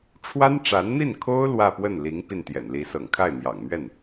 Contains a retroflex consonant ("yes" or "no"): yes